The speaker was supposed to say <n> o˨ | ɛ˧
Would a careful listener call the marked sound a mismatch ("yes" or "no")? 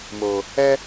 yes